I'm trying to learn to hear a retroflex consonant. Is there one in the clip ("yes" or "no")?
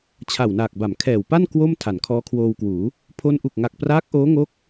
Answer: no